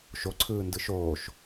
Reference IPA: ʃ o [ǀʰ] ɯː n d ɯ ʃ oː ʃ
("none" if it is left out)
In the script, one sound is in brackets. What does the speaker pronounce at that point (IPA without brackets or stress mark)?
ǀʰ